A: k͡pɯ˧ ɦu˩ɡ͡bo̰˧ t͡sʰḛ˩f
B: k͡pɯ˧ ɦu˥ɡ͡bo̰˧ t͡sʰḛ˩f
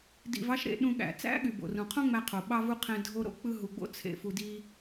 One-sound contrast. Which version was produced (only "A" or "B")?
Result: A